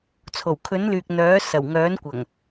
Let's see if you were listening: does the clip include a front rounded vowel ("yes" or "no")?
yes